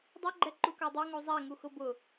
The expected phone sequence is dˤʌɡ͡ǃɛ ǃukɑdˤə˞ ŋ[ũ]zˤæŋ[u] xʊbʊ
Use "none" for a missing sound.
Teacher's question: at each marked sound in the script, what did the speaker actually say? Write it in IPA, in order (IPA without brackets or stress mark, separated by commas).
u, u